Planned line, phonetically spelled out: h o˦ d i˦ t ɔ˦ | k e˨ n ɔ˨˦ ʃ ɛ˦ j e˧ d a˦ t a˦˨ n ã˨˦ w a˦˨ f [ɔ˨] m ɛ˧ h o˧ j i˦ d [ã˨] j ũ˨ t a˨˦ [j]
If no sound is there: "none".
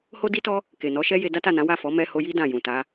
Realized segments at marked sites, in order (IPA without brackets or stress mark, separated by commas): ɔ˨˦, ã˦˨, none